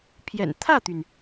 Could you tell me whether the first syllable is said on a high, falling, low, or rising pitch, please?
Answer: low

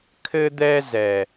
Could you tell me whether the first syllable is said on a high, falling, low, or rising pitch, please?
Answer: high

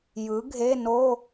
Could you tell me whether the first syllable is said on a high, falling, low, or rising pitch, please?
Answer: rising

